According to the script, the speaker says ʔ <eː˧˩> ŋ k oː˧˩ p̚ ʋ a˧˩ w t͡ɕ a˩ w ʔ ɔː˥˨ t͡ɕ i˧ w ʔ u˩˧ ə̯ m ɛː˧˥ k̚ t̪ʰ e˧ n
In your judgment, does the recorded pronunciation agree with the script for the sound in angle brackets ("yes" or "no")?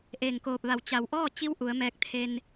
yes